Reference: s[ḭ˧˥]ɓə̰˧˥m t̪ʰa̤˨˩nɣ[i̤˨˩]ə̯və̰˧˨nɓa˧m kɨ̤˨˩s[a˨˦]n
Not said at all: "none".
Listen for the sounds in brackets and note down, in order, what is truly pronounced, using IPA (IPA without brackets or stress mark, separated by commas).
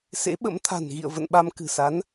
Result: ḛ˧˥, ḭ˧˨, a˨˦